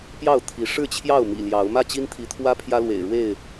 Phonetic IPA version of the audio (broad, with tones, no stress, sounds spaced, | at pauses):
p j ɑ˥˨ ʊ̯ t̪ʰ i˨˦ ʂ ɻ̩˥˨ t͡ɕʰ j ɑ˥˨ ʊ̯ m ḭ˨˩ l j ɑ˨˦ ʊ̯ m ä˥˨ t͡ɕ i˦ n t̪ʰ i˨˦ t̪ʰ w ä˦ pʰ j ä˦ l w ḛ˨˩ ɪ̯ ɻ w e˥˨ ɪ̯